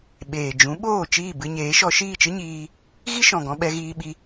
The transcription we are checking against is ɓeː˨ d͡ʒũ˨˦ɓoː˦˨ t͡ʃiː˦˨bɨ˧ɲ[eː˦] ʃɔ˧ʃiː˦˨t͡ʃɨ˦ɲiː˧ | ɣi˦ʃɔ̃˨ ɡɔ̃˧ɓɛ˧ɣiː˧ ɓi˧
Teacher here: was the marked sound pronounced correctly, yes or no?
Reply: no